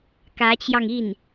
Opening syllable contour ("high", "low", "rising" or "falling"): rising